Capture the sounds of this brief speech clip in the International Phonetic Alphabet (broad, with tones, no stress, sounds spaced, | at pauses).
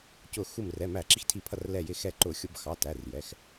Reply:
c ʊ˧˩ x u˧˩ m r ɛ˩˧˩ m æ˧˩˧ ǁ i˧˩ x tʰ i˧˩˧ pʰ ʌ˧˩ r l ɛ˧˩ j ɪ˧˩ x ɛ˧˩ ǃ ʊ˧˩˧ xʲ ʊ˧˩˧ b x ɑ˩˧˩ t æ˩˧˩ r j ɛ˩˧˩ x